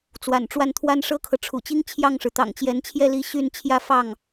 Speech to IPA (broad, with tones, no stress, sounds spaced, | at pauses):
t͡s w a̰˨˩ n ʈ͡ʂ w a˥˩ n t̪ʰ w a˥ n ʂ ɤ˥ kʰ ɤ˨ ʈ͡ʂʰ ṵ˨˩ t͡ɕ i˥ ŋ t͡ɕʰ j ɑ˥˩ ŋ ʂ ɻ̩˩ t̪ ɑ̰˨˩ ŋ t͡ɕ j ɛ˧˥ n t͡ɕʰ j ɛ˥˩ l i˧˥ ɕ y˥˩ n t͡ɕʰ j ä˥ f ɑ˥˩ ŋ